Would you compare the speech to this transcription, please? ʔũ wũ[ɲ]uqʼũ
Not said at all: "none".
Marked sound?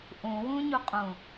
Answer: ɲ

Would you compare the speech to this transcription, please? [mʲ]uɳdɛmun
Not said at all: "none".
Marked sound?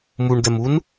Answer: m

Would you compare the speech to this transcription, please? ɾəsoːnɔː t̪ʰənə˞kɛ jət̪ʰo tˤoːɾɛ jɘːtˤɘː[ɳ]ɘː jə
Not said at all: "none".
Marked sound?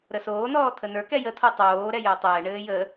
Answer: ɳ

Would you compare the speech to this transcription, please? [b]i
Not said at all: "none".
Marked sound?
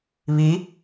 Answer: β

